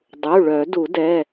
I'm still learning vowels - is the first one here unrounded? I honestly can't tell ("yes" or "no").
no